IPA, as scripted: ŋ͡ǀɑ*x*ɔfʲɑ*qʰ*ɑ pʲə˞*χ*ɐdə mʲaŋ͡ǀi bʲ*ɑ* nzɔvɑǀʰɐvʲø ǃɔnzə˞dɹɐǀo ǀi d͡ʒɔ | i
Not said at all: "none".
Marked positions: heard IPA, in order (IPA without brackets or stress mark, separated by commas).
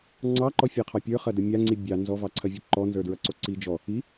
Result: ǃ, qʰ, χ, ɑ